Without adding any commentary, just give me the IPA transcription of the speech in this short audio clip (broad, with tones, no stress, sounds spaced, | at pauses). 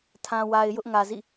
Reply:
tʰ ã˨ w a˨ ɪ̯ j ʊ˦ ʔ ŋ ä˨ z ḭ˦˨